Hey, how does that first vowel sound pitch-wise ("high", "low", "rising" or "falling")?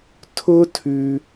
high